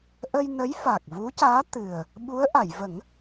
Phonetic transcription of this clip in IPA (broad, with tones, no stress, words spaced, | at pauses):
ʔə˧j nə˧˥jfa˨˩k̚vu˧˥caː˧˥ t̪ɨ˨˩ə̯ | ɓu˧˥ə̯ʔa˨˩˨j və˨˩˦ŋ